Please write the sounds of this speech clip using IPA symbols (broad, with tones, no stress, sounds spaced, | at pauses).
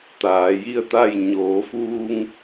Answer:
t̪ aː˩˧ j i˥˨ ə̯ t̪ a˥˨ j ɲ oː˩˧ f uː˧ ŋ